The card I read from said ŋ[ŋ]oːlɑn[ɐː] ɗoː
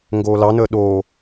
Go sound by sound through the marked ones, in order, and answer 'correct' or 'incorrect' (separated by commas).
incorrect, incorrect